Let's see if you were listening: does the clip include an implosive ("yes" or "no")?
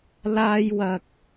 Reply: no